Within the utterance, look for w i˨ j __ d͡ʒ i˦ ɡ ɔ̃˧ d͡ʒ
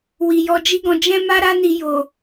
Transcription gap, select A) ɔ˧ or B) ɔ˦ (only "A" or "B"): A